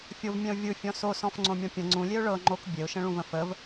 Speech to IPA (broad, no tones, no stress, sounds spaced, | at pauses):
fʲ o v mʲ ɛ̃ ʊ̯ vʲ ɯ fʲ ɔ̃ s o s ɔ̃ f ŋ͡ǀ õ mʲ ɔ̃ pʲ ə̃ ŋ͡ǀ ũ lʲ e ʊ̯ ɭ ɤ ŋ͡ǃ o k bʲ e ʊ̯ ʃ ə̃ ɭ ũ v ə̃ f ə v